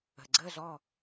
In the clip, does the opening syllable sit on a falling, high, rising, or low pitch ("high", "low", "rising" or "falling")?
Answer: low